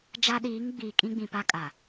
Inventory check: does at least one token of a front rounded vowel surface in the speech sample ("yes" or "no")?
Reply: no